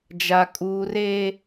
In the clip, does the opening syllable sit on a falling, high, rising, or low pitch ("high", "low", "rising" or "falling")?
high